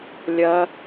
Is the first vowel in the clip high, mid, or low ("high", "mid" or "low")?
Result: low